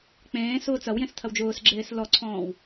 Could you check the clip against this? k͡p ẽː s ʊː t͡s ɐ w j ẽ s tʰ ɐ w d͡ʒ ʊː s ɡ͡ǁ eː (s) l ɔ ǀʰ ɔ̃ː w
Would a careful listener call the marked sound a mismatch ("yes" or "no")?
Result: no